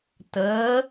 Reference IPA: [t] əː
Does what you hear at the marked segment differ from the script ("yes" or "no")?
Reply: no